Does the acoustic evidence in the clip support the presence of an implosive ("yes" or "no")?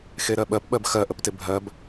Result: yes